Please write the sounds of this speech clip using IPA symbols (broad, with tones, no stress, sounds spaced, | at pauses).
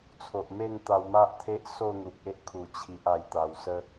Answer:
t͡sʰ o˨ ʔ m e˥˧ n t̪ a˧ w m a˦ ʔ t̪ʰ e˦ ʔ s o˥˧ n̪ u˨ k̚ e˦ ʔ kʰ u˨˩ t͡ɕʰ i˨ ʔ a˧ j t̪ a˧ w s ə˦